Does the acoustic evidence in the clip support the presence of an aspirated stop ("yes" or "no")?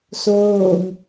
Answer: no